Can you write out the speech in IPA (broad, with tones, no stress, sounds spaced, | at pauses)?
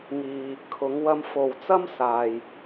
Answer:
ŋ iː˨ | kʰ ʊ˨˧ ŋ w ɐ˧ m f o˨ w t͡s ɐ˥ m s aː˨ j